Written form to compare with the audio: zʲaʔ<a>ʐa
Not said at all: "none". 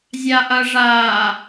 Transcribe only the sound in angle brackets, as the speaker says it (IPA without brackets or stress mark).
ɐ